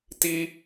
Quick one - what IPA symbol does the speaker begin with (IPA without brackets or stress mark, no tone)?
t